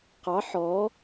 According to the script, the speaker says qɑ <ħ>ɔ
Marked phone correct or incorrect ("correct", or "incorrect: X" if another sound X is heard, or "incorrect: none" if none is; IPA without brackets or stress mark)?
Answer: correct